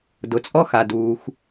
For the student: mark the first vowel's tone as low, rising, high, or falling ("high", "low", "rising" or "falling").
low